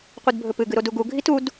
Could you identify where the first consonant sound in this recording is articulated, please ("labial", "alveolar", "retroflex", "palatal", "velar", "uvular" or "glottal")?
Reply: uvular